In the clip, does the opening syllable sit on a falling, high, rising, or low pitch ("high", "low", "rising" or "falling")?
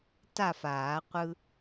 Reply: falling